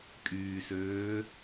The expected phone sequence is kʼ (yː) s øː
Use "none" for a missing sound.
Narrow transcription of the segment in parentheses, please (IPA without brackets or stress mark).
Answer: yː